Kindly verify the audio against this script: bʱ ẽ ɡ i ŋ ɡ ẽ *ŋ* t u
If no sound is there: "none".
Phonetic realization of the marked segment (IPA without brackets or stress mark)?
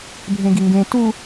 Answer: none